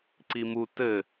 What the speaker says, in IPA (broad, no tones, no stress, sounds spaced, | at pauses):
ǀ i m u t ɘ